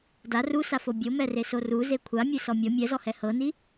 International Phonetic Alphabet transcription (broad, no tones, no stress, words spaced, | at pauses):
da rusafo bʲomɛreso ruze kʷʰamʲesɔ mʲɔ mʲɛzɔhɛ hɤni